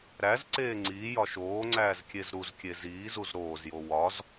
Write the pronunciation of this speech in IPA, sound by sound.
ɾ æ z ǀ eː ŋ͡ǀ iː j ɒ ʃ oː ŋ͡ǀ æː z kʲ e z ɾ u z kʲ e z iː z u z ɾ oː z j o w ɒ z

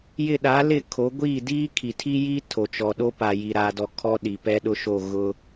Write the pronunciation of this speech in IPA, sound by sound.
j ɪ˦˨ ɗ a˨˦ l ɪ˦˨ kʰ o˨˦ ɡʷ i˦˨ d iː˦ kʰ i˨ tʰ i˦ j iː˦ tʰ o˨ t͡ʃ ɔ˨ ɗ o˦ p a˨ j i˨ ɾ aː˨ d ɔ˨ kʰ ɔ˦ ɗ i˨ p ɛ˦ ɗ ʊ˦ ʃ o˦˨ ɣ ʊ˦

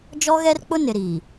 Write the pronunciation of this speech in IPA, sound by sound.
d͡ʒ ɔ˦ ɣ ɛ˦ r k͡p ʊ˦ n ɪ˨ ɾ iː˨

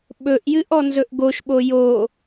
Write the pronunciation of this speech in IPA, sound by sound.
ɓ ɵ ʔ j ɨ ʔ ɔ n z ɵ ʔ ɡ o ʃ ɓ o j o

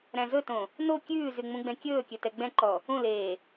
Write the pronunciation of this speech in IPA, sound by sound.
ɾ æ̃ z ɵ t õ | n o kʲ ʉː z y ŋ͡m ũ ɡ͡b ɛ̃ kʲ ɵː kʲ ɵ t ɛ ɡ͡b ɛ̃ ǃ ɔ | ũ l eː

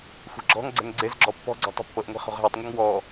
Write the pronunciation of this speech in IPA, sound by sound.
xʷ ɛ̤ ɡ͡ǁ ɔ̤ ŋ ɡ͡ǀ ɛ̤ ŋ ɡ͡ǀ e z ɡ͡ǁ ɔ pː ɔ̤ ɡ͡ǀ ɔ̤ tˤ ṳ pː ɤ ʔ ŋʷ ɛ̤ χ ɔ̤ ʁ ɦ e tˤ ŋʷ a ŋ w ɔ

